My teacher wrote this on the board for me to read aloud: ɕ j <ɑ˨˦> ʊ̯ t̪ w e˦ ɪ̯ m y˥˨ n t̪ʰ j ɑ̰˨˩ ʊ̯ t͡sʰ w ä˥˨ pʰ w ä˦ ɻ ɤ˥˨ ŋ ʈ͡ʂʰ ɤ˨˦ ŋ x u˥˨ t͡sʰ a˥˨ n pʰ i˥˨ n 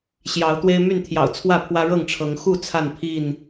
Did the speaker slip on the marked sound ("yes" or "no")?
no